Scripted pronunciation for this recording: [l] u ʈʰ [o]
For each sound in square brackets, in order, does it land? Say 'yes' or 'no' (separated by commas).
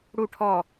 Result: no, no